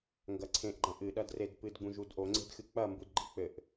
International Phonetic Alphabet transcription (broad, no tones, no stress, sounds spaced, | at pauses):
ŋ ɡ ɐ ǀʰ ẽ ʔ ɡ͡ǃ ɐ̃ ʔ ɨ ɗ ɐ d r e d p ɨ d ɡ͡b ũ ʒ u d ʔ o ŋ͡ǀ e̤ d x ɨ k͡p ɐ m b u d ɡ͡ǃ i k͡p ɘ ʔ